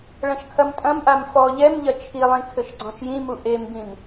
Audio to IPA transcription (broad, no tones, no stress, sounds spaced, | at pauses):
ɭ ɐ̃ ʃ kʰ ɐ m tʼ ɐ̃ m ʔ a m f ɔ ʎ ɛ m ʎ ɐ t͡ʃʰ i lˠ ĩ kʰ ɘ ʃ ɡ͡ǀ ɔ̃ ʃ j ĩ m u ʔ e m b ĩ m